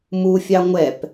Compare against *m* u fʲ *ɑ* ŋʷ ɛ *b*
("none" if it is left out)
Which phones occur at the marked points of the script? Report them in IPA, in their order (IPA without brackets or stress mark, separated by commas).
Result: m, ɑ, p